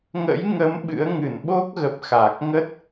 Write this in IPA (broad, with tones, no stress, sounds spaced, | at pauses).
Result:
ŋ ə̰˧˥ j ŋ ə˨˦ m ɓ ɨ̰˧˥ ə̯ ŋ ɨ˧˩ n ɓ o˦˥ k̚ ɣ ə˨˩ p̚ x a˨˩ k̚ ŋ ə˦˥ t̚